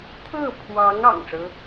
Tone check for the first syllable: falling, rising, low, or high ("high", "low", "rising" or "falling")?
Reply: falling